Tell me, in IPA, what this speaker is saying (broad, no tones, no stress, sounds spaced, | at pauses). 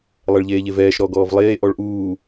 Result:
lˠ ɛ ɭ ʎ eː ʎ e v ɛː ʃ ɾ ɔ ɡ ɔː v lˠ eː ʔ ɔ ɭ ʔ uː